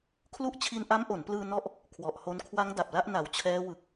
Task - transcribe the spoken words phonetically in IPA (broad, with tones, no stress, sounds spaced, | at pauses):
kʰ l u˦˥ ʔ t͡ɕʰ i˧ n ʔ a˦˥ m ʔ o˩˦ n p l ɯː˧ n ɔ˦˥ ʔ | kʰ w ɔ˨˩ ʔ h o˧ n kʰ w a˦˥ ŋ d a˨˩ p̚ l a˦˥ ʔ n a˨˩ w t͡ɕʰ ɛː˦˥ w ɯ˨˩ k̚